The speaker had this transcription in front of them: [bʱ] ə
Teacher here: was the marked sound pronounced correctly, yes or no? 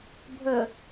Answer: yes